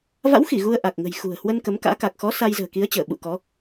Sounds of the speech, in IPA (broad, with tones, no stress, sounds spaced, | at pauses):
v a̰˧˥ w x i˧˩ ɣ u˧ ə̯ ʔ a˨˩ k̚ ŋ ə̤˨˩ j x ṳ˨˩ ə̯ h w ə˧ n k ə˨˦ m k a̰ː˧˥ k a˨˩ k̚ x ɔ˨˦ s a˧ j z ə̤ː˨˩ k i˨˦ ə̯ t͡ɕ əː˧˩ ɓ ṵ˧˨ k ɔ˨˦